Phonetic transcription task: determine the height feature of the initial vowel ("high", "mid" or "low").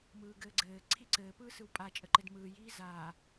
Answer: high